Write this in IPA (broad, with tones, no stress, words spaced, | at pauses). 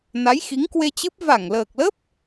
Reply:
na˨˦jxi˨˦ŋkwe˧t͡ɕɨ˦˥p̚ va˧˩ŋləː˨˩k̚lə˦˥p̚